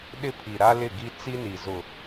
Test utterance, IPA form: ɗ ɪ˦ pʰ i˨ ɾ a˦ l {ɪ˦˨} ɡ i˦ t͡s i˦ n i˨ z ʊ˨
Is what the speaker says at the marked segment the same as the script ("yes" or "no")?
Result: yes